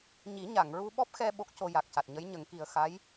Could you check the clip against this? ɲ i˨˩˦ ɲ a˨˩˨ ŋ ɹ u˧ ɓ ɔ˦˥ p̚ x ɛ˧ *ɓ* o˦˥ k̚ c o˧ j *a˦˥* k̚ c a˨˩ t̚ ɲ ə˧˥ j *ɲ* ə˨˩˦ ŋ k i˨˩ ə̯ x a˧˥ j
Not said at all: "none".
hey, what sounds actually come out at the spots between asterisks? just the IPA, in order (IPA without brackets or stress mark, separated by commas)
ɓ, a˨˩, ɲ